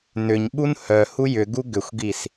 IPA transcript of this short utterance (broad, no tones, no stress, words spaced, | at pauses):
nʏɲɓun hœ hujʏɡu ɡʏxʷɡis